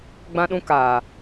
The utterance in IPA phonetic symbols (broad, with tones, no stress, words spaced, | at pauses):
ɡ͡bã˦ɗũ˦ kaː˨